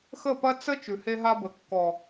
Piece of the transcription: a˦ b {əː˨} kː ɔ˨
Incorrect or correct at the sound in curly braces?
incorrect: ə˨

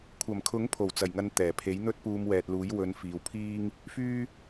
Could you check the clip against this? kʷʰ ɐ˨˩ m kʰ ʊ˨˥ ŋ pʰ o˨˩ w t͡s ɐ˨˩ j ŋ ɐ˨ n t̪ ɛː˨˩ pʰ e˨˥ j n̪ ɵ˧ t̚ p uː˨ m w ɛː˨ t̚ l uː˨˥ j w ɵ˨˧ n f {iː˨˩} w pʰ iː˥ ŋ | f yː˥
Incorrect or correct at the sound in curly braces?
incorrect: iː˨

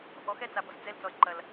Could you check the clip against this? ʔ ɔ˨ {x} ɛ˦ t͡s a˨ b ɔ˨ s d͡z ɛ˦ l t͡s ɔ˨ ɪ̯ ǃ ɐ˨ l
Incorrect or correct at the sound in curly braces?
correct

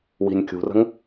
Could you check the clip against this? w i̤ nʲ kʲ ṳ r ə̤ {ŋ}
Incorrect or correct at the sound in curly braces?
correct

